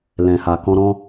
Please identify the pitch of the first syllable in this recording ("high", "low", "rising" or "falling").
low